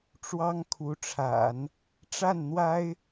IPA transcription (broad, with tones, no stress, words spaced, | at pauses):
ʈ͡ʂwɑ˥ŋkʰu˧˥ʈ͡ʂʰa̰˨˩˦n | ʈ͡ʂa˥˩n n̪wa˥ɪ̯